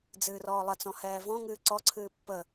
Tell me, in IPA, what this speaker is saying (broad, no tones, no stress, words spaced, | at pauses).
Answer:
d͡zɨːrɔːlˠət͡sɔ̃ hɛːvɔ̃ŋɨː ǀɔǀʰɨː pːə